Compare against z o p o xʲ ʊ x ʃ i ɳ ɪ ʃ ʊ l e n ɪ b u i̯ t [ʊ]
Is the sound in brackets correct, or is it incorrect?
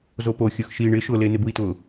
correct